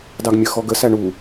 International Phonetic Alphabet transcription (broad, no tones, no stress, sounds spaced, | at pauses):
d ɑ ɡ mʲ ə x ɔ ɡ ə s æ ɳ u